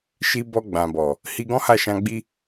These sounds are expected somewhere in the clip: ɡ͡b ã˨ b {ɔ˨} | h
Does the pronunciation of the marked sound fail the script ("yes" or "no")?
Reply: no